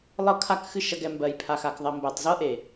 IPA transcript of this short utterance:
lˠ ɤ˦ kʰ a˦ k x ɨ˦˨ ʃ ɐ˧ ɡ ɛ˨ m b ɜ˨ j pʰ a˨ x a˨ k ðˤ ɐ˨ m b ɜ˨ tˤ z ɤ˦ ʔ e˨

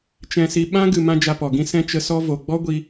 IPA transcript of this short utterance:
t͡ʃ ɛ̃˨ s i˨ ɓ ã˦ ɡ ɨ˨ m ã˦ d͡ʒ a˧ p ɔ˨ ɡ ĩ˦ s ɛ̃˧ t͡ʃ ə˧ s ɔ˦ v o˨ ɡ͡b ɔ˦ ɡʷ i˧

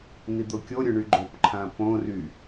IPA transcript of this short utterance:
n i d̪ o kʲ o ɾʲ ʊ ɳ y ɡ͡ǃ o p ǃʰ ã p õ r y

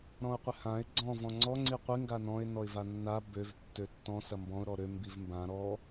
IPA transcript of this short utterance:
ɾ ɔ̃ ʊ̯ qʷ ɪ h ã ɪ̯ ɡ͡ǀ ɔ̃ v ɔ̃ ŋ͡ǀ ɔ ŋ͡ǀ i qʷ i ŋ ɡ a n ɔ̃ ɪ̯ n ɔ ɪ̯ v a nː a b ø v tː ø tː ɔ̃ s ɐ m b ɔ̃ ʊ̯ ɾ ɔ ɾ ø m b i v m b ã ɾ ɔ

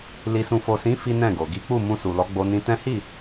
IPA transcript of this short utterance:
l i˨ s ũ˨ f o˨ s ĩ˨˦ f i˦ n ɛ̃˦˨ ɡ o˨ ɡ i˨˦ k͡p u˦˨ m ũ˧ s u˨ l ɔ˨˦ ɡ͡b o˧ n ĩ˧ t ɛ̃˦ h i˦˨

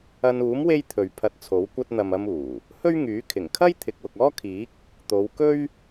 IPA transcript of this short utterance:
ɐ˧ n uː˨˥ m w e˥ j t̪ʰ ɵ˨ ɥ pʰ ɐ˧ t̚ t͡sʰ o˨˥ w kʷ ɐ˧ t̚ n̪ ɐ˨ m ɐ˧ m uː˨˩ | h ɵ˥ ɥ ŋ yː˨˥ kʰ ɪ˨˩ ŋ kʰ ɐ˥ j t̪ʰ ɪ˨ k̚ w ʊ˨ k̚ ɔː˥ kʰ iː˨˥ k̚ | t̪ o˨˧ w k ɵ˥ ɥ

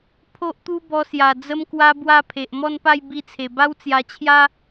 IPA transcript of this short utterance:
pʰ o˦ ʔ t̪ u˦ b ɔ˧ s j a˨˩ d͡z ə˧ m k w a˧ b w a˥˧ pʰ e˨ ʔ m ɔ˥˧ n p a˥˧ j b i˧ t͡sʰ e˨˩ b a˦ w t͡s j a˧ t͡ɕʰ j a˦

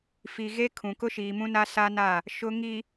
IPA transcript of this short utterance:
f i˨ ɣ e˦ kʰ ũ˨ k ʊ˦ ʃ iː˨ m ũ˦ n a˦ s a˦ n a˦˨ | ʃ ʊ˨ ŋ i˨

